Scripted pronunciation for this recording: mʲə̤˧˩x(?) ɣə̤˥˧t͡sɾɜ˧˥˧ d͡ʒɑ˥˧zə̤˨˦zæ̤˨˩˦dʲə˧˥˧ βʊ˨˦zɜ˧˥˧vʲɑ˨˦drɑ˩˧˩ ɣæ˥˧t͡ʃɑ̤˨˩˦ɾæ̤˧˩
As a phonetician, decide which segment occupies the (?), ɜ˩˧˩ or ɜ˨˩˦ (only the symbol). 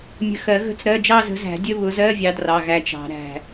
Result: ɜ˨˩˦